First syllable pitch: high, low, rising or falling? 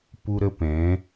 high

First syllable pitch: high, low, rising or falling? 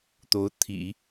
rising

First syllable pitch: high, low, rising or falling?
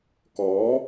rising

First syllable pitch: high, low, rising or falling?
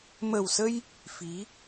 low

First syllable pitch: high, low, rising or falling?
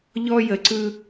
high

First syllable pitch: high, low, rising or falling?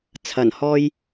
low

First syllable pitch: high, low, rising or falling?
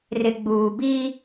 low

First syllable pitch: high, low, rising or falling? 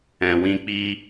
low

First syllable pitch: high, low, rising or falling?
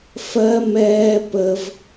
high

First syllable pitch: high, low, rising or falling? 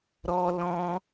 high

